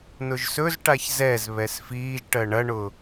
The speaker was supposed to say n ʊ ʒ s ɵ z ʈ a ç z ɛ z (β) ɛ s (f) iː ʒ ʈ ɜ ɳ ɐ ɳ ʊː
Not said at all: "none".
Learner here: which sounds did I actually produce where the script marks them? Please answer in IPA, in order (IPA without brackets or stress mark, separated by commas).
β, f